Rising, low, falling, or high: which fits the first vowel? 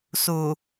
low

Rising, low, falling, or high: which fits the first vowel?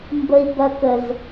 high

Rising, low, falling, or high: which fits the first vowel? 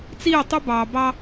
falling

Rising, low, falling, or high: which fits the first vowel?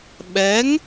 rising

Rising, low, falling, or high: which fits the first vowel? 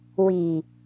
low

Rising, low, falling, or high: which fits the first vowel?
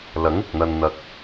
rising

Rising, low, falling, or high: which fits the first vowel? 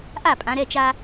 falling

